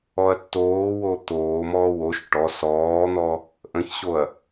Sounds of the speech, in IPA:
ɔ ɐ̯ tː oː w o t̪ oː m ɔː w o ʃ ʈ ɔ s ɔː n̪ ɔ | ʔ ə̃ ç ɕ o ɐ̯

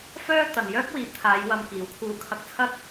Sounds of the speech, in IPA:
f œː˥ t̪ ɐ˨ n j œː˥ k̚ w iː˨ p̚ t̪ʰ aː˨˧ j w ɐ˧ m k iː˨˥ w kʰ uː˧ kʰ ɐ˧ k̚ t͡sʰ ɐ˥ t̚

